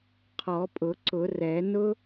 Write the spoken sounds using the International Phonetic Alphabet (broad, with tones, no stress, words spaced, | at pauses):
qʰɔ˨˩˦pʼʊ˨˩˦ǀʊ˨˩˦rɛ˨˩˦ nʊ˦